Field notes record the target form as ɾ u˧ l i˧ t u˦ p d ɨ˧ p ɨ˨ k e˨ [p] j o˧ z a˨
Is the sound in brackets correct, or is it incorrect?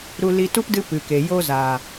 incorrect: none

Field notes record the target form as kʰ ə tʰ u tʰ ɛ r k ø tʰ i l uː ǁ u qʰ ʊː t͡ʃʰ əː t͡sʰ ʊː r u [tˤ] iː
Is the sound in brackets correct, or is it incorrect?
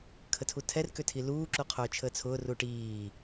incorrect: ʈ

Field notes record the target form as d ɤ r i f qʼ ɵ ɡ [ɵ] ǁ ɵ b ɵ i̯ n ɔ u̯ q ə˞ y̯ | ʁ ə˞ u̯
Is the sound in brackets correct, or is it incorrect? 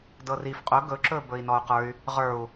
correct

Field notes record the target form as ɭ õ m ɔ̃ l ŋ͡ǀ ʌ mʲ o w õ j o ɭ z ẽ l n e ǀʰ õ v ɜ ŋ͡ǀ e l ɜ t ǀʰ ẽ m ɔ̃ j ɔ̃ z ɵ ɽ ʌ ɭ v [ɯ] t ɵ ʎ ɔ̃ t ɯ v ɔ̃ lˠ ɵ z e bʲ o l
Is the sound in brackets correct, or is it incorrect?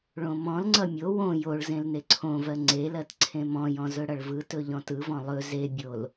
correct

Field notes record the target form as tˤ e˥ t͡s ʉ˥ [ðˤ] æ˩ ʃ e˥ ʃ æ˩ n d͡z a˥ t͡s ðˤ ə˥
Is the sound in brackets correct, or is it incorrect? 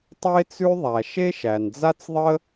correct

